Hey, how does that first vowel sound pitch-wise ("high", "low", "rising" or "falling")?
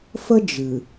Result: high